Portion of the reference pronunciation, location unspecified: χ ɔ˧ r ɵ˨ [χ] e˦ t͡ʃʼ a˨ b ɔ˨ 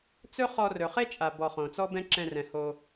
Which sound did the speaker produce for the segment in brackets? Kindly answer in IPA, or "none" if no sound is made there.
χ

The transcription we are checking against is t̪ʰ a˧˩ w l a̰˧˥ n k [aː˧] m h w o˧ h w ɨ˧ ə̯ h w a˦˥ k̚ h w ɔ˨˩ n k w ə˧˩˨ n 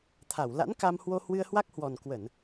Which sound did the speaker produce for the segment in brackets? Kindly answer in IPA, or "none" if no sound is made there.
a˧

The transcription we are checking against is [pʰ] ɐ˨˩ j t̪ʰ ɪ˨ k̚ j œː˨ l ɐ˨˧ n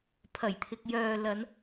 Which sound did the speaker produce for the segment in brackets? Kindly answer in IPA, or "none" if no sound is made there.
pʰ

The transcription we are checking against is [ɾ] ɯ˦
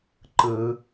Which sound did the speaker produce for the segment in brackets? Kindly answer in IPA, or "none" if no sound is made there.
ǃ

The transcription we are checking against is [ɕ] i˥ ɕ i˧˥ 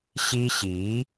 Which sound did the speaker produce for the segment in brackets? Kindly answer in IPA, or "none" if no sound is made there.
ɕ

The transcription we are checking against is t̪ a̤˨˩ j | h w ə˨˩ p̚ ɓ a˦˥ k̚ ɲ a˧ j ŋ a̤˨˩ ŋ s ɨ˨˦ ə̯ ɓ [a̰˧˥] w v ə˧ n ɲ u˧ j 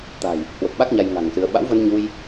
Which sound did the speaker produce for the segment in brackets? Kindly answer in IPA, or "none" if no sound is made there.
a̰˧˥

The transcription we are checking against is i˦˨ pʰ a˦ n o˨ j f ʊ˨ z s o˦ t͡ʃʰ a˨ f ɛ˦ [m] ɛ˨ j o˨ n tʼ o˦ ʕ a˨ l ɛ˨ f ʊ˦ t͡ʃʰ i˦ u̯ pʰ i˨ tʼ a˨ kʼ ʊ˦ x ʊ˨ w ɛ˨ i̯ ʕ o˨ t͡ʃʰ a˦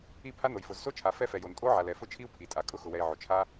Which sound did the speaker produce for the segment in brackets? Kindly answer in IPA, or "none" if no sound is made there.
f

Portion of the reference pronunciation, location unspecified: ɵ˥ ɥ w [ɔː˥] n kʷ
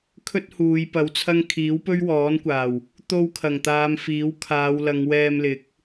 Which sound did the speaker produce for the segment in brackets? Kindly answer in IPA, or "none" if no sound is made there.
ɔː˨˥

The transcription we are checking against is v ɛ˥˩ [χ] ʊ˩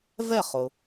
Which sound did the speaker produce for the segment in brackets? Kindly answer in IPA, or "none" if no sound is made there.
χ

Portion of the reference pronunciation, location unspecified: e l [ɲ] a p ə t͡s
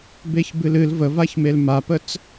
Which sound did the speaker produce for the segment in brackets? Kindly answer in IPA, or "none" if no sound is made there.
m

